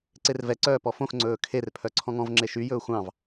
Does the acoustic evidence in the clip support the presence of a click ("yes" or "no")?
yes